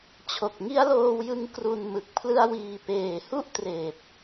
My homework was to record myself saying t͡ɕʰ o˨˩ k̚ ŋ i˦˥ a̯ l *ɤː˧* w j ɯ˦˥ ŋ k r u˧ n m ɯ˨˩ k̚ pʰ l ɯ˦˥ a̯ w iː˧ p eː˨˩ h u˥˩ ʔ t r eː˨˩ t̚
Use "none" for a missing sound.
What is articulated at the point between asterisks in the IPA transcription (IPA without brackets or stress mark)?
oː˧